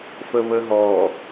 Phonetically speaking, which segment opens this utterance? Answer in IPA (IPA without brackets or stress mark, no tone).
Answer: f